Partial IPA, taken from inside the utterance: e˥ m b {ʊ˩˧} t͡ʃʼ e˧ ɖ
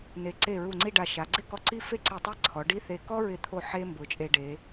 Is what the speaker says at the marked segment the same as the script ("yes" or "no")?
yes